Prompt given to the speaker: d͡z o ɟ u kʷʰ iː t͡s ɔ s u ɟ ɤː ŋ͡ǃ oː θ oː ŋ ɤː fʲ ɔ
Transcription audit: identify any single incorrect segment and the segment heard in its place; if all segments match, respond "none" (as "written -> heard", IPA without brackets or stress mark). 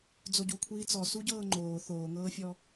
none